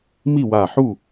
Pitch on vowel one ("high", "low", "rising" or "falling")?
falling